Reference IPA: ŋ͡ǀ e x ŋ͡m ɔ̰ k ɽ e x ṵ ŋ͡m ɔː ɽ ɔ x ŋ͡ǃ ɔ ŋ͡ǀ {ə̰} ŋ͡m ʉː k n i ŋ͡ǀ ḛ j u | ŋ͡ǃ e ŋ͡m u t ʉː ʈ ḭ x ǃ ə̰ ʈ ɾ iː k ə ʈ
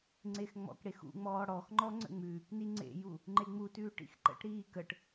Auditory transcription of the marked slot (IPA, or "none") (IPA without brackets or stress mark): ə̰